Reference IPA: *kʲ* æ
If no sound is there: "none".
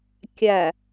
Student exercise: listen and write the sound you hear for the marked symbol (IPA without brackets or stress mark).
kʲ